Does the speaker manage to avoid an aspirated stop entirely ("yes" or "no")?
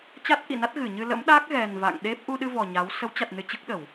yes